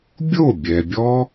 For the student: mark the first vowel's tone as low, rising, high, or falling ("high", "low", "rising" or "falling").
falling